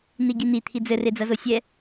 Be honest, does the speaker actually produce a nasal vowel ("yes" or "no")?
no